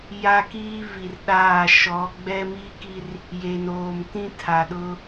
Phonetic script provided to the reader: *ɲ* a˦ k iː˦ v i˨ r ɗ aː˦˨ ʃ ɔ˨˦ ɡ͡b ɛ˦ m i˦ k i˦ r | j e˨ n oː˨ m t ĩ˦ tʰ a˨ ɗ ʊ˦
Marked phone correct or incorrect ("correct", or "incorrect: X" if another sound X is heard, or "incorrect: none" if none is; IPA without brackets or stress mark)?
incorrect: j